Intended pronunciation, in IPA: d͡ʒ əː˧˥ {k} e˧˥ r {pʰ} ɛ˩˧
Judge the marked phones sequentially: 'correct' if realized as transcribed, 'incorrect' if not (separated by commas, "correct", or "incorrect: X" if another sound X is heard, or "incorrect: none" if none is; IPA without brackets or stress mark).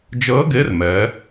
incorrect: ɡ, incorrect: m